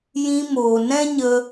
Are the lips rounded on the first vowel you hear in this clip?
no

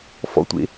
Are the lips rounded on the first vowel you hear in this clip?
yes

